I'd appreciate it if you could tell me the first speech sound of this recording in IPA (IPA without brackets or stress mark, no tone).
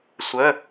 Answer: sʷ